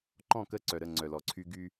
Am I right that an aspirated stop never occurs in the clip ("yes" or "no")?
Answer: no